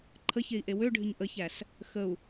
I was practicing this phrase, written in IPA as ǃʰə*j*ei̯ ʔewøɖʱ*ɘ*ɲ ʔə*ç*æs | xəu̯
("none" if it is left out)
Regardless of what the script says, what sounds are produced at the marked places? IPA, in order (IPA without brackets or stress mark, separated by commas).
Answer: ç, ɘ, ç